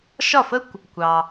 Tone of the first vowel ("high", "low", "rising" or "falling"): falling